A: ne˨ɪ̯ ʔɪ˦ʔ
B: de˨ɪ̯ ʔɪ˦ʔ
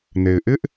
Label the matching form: A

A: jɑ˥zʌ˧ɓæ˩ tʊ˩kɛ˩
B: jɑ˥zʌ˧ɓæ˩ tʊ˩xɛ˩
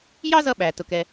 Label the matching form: A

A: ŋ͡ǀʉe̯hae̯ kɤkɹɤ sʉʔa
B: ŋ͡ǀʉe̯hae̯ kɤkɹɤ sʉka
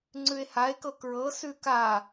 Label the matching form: B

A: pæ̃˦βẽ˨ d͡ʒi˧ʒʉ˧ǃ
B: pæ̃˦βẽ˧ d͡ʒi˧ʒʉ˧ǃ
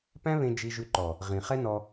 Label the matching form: B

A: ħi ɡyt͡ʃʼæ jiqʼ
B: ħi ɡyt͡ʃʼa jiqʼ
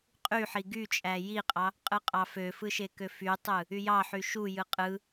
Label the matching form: A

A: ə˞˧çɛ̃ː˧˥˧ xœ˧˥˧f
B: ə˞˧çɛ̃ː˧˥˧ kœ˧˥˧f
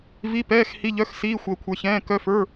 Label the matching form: B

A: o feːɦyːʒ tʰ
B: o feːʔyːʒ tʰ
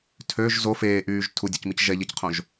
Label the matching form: B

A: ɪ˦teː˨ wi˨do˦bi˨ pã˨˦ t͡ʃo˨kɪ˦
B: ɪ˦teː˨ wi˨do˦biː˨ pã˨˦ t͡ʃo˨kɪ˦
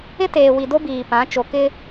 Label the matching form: B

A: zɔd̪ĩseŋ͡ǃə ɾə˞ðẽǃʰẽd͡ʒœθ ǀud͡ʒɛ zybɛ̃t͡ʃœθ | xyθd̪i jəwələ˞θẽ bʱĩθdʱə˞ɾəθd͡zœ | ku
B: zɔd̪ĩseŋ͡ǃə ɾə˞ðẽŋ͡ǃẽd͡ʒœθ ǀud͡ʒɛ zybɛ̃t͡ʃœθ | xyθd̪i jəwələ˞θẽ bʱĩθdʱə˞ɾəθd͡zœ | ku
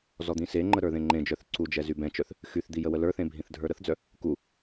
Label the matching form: B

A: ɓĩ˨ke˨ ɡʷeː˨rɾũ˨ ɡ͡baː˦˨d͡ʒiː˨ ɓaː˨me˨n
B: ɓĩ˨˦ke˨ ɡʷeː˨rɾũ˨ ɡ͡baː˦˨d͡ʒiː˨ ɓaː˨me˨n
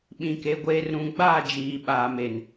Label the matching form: A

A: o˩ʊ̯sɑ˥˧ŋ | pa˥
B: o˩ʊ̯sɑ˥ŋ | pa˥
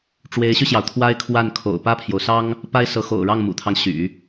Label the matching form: B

